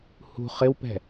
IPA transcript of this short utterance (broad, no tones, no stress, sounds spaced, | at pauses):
h ṳ χ ɪ w p ɛ̤